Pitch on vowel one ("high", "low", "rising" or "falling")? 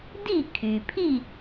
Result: falling